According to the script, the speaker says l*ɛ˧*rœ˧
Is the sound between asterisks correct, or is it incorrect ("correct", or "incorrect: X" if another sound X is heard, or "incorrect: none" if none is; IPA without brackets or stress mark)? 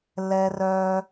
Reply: correct